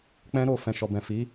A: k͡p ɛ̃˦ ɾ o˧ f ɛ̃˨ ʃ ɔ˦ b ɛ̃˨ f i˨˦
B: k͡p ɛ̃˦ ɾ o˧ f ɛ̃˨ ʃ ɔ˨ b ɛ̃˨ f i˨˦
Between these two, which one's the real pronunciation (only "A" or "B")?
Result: B